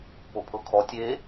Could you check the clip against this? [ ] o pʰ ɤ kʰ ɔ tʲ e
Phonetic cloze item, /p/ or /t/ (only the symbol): p